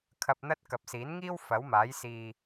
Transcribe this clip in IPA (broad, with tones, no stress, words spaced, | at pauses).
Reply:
kʰɐ˧p̚n̪ɐ˥t̚ kɐ˨p̚siː˨˥nŋiː˥w fɐ˨˥wmaː˨˥jsiː˧